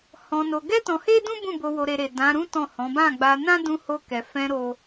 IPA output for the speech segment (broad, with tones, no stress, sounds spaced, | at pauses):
h ɔ̃˧ n o˧ ɡ ɛ˦ t ɔ̃˧ h e˦ d ũ˦ b ũ˦˨ b o˧ w o˧ ɾ e˧ ɾ e˨ d ã˨˦ ɾ ũ˦ t ɔ̃˦˨ h ɔ̃˨˦ b ã˦˨ ɡ͡b a˧ n ã˦ d ũ˧ h o˧ k ɛ˨ f ɛ̃˧ ɾ o˦